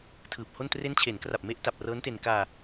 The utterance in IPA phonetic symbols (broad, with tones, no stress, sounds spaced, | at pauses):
tʰ ɯː˨˩ p̚ h o˥˩ n t r e˦˥ n t͡ɕʰ e˩˦ n k r a˨˩ p̚ m e˦˥ ʔ t a˨˩ p̚ r ɤː˦˥ n t e˧ n k aː˧